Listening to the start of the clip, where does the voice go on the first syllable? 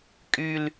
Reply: low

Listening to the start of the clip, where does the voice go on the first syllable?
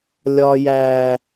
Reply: high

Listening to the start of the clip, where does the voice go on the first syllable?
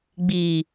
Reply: low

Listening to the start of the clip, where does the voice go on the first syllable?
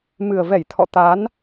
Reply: low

